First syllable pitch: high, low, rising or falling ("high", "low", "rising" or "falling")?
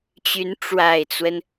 rising